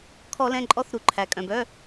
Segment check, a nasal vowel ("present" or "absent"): present